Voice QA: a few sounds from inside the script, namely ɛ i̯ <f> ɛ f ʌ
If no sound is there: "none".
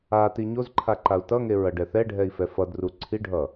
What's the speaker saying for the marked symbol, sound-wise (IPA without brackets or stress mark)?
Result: f